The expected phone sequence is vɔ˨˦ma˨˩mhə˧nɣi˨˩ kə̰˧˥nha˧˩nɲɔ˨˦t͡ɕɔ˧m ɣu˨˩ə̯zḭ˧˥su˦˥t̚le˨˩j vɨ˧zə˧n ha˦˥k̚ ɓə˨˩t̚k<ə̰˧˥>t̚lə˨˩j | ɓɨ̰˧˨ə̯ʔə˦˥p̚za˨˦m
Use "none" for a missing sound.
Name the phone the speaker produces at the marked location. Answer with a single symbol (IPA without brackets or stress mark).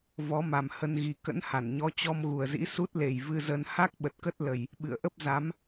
ə˦˥